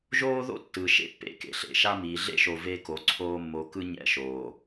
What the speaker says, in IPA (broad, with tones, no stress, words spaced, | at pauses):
ʒoː˦ðo̰˦ tːɯ˨ ʃḛ˦pːḛ˦ kḛ˨ɬḛ˨ʃa˦miː˨ ɮḛ˦ʃo˨ ve˦ko˨˦ǀʰoː˦ mːo˨kɯ˦ ɲɛ̰˦˨ʃoː˨